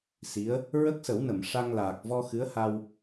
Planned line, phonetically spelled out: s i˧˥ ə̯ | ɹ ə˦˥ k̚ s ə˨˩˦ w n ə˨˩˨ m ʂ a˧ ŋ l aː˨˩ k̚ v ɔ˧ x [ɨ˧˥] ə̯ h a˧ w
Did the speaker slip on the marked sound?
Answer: no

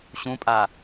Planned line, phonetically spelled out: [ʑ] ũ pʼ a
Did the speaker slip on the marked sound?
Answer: yes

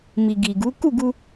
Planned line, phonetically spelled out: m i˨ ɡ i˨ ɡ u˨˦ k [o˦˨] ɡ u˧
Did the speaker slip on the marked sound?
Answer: yes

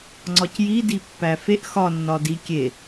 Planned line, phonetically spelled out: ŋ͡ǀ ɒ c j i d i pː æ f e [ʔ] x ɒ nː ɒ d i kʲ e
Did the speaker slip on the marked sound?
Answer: no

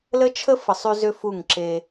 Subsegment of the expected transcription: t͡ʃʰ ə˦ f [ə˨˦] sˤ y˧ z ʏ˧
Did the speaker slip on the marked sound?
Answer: yes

